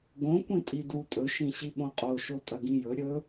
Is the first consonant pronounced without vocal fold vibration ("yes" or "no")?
no